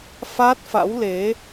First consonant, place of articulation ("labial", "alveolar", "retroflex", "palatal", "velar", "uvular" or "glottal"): labial